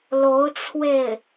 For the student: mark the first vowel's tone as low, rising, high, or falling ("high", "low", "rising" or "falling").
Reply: rising